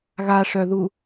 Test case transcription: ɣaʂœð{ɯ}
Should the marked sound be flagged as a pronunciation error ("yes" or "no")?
yes